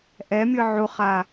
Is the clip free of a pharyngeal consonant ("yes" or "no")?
no